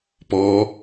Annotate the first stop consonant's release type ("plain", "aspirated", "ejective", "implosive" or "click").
plain